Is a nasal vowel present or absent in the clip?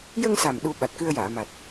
absent